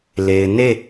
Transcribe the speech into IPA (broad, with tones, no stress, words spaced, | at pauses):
le˨ɪ̯ne˦˨